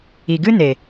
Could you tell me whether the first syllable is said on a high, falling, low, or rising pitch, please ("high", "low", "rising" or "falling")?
low